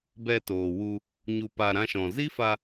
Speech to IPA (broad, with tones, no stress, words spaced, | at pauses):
bɛ˧toː˨wu˧ | ɲu˧pa˧ ɾã˧ʃɔ̃˨ zi˦fa˧